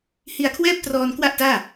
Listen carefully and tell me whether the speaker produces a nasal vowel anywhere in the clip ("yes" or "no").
no